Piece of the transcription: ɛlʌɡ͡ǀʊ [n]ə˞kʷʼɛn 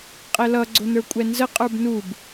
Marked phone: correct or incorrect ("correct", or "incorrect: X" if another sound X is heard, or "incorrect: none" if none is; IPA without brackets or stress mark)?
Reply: correct